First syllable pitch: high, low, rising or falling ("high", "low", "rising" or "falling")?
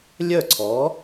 falling